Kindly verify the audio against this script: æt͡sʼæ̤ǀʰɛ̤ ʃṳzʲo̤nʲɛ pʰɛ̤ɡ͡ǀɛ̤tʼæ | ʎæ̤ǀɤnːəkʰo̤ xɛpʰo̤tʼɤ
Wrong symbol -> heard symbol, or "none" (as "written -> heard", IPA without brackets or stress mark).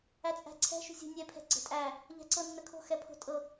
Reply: none